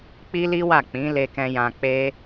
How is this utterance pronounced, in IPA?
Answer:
k͡p i˦ l i˦ w a˦˨ k͡p ĩ˨˦ l e˧ k ɛ̃˧ j ã˧ k͡p e˦

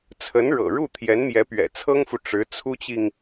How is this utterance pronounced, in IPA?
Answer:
t͡sʰ ə˧˥ n ɻ ɤ̰˨˩ ɻ u˥˩ t̪ʰ j ɛ˧˥ n m j ɛ˧˥ p ɥ ɛ̰˨˩ t͡sʰ ɤ˥ ŋ f u˨ ʈ͡ʂ ɻ̩˧˥ t͡sʰ u˥ t͡ɕ i˨ ŋ

